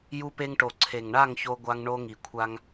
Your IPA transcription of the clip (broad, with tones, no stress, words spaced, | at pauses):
ju˧pe˧ŋʈo˨ ǀʰe˨ŋɳa˦˨ŋ ço˧ɡʷa˧ŋ ɳo˧ŋi˨kʷʰa˧ŋ